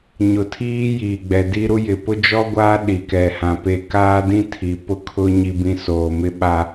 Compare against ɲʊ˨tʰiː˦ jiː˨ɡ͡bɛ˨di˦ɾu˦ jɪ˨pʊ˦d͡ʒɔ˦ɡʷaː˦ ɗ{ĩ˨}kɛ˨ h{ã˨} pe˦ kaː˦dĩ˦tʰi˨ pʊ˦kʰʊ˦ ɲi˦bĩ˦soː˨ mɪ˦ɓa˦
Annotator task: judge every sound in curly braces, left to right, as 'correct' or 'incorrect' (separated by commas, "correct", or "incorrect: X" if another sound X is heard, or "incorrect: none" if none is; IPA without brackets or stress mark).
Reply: incorrect: i˨, correct